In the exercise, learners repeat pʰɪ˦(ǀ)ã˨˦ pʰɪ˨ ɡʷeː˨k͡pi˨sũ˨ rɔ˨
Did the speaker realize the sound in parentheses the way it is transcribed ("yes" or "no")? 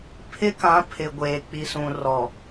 no